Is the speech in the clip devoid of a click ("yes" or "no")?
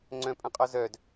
no